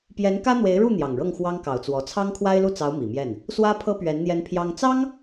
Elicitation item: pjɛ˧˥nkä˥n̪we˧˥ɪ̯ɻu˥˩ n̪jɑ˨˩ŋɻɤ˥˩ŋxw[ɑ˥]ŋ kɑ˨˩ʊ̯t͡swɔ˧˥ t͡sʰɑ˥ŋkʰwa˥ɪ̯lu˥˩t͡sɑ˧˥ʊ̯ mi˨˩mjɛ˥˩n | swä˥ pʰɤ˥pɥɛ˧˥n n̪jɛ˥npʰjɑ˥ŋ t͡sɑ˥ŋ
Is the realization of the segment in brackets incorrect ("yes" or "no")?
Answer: no